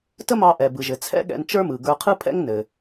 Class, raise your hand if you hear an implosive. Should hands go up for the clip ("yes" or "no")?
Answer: yes